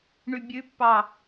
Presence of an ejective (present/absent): absent